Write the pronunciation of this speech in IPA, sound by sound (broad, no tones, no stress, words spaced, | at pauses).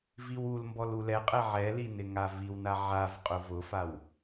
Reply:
viwulmbɔl ulɛqʼɛ ʕɛli nɪŋaviwna ʕav qʼʊvʊfaw